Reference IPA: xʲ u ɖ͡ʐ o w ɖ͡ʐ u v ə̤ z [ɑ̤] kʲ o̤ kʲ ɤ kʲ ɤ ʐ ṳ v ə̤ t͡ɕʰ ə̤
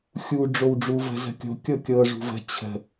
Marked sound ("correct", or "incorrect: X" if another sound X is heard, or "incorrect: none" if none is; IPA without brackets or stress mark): incorrect: ə̤